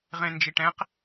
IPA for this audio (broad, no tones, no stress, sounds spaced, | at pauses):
ʁ ẽ n d͡ʒ i ʈ ɛ̃ q